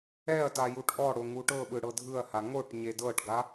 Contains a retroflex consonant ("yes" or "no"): yes